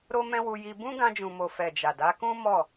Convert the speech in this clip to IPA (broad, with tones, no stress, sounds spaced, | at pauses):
ɾ o˧ m ɛ̃˧ w u˧ j i˧ b ũ˦ ɡ ã˧ d͡ʒ ũ˨ m o˨ f ɛ˨ d͡ʒ a˨ d a˨˦ k ũ˦ m ɔ˦˨